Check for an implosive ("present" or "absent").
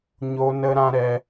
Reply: absent